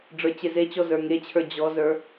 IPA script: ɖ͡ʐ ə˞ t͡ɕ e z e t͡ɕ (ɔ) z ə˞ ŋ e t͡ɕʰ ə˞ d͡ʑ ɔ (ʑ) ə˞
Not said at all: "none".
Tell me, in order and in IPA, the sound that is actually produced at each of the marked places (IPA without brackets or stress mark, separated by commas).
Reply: ɔ, z